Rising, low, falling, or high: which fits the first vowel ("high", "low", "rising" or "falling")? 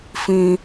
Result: high